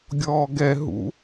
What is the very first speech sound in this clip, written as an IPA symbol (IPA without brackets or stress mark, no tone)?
ɡʲ